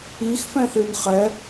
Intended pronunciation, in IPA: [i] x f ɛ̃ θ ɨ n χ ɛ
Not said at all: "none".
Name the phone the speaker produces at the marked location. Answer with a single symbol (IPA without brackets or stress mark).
i